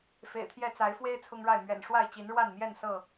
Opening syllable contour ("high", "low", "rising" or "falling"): low